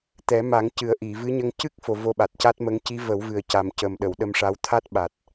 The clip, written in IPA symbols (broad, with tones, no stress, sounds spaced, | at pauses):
t̪ ɛ˨˩˦ m a˨˩˦ ŋ c ɨ˨˩ ə̯ ʔ i˨˩˨ v ɨ˧˥ ɲ ə˧ ŋ c ɨ˦˥ k̚ f o˨˩ v o˧ ɓ a˨˩ t̚ c a˦˥ t̚ m ə˧˥ ŋ c i˧˥ v ə˨˩˦ w v ɨ˨˩ ə̯ c a˨˩ m c ə˨˩ m ɗ ə˨˩˨ w ɗ ə˧ m ʂ a˧˥ w t̪ʰ a˦˥ t̚ ɓ a˨˩ t̚